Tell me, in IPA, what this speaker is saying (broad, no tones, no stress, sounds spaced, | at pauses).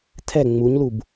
tʰ ɛ ŋ͡m u ɲ l u b